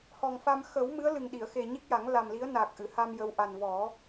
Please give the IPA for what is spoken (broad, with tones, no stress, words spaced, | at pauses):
hɔ˨˩ŋfa˧m xə˨˩˦wmɨ˧˥ə̯ lɨ˨˩ŋɗi˨˩˨ə̯xe˨˩ ɲi˦˥k̚ja˨˩˦ŋ la˨˩mli˧˥ə̯ naː˨˩k̚ʔɨ˨˩˨ha˧m jə˧˥wʔa˨˩n vɔ˨˩˦